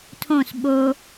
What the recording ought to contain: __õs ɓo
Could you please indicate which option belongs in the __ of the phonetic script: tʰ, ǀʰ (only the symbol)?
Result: tʰ